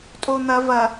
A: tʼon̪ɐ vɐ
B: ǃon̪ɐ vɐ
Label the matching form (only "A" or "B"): A